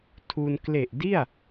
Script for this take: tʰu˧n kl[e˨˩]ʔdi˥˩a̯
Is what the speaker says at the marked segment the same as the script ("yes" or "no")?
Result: yes